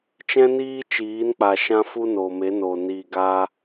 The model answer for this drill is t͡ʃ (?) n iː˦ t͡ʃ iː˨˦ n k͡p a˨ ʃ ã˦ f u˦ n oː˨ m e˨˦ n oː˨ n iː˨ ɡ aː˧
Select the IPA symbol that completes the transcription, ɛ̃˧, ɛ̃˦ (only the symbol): ɛ̃˦